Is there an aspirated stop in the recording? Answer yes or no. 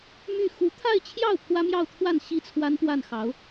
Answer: yes